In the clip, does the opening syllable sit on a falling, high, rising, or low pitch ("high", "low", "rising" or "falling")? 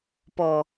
low